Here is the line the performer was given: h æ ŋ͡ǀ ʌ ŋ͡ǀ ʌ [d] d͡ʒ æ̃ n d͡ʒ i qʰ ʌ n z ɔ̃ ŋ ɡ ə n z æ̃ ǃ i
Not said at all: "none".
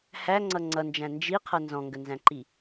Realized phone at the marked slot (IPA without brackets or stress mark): n